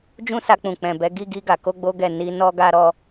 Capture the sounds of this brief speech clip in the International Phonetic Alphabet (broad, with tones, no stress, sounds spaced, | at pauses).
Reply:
d͡ʒ ũ˦ s a˧ k͡p ũ˨ k͡p ɛ̃˨ b ɛ˨˦ ɡ i˦˨ ɡ i˧ ɡ a˨ k o˧ ɡ͡b o˦ ɡ ɛ˦˨ n i˧ n ɔ˦ ɡ a˦ ɾ ɔ˦